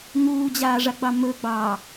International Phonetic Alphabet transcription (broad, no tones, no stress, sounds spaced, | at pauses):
ŋ uː d͡ʑ aː ʐ a ɡ͡b ɑ m ɵ ɡ͡b ɑː